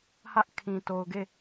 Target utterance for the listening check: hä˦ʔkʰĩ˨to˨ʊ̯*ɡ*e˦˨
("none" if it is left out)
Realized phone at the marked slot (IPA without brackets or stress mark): ɡ